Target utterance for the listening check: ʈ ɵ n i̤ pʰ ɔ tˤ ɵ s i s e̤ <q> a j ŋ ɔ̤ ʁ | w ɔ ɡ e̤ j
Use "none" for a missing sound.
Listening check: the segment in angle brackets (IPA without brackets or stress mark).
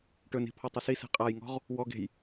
qʼ